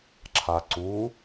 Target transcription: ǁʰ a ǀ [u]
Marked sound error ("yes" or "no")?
no